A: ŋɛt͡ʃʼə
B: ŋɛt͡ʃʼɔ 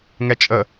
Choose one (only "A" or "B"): A